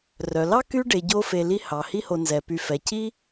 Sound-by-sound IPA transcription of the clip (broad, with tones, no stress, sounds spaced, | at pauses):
r œ˩ l ɑ˥ k y˥ ɖ e˨ ɟ o˦ f e˨ l i˦ h ɑ˩ h i˦ h o˨ n z ɛ˩ p y˨ f ɛ˩ c i˥